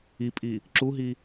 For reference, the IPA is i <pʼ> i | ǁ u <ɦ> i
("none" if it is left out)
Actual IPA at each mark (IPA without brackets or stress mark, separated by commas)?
pʼ, ɦ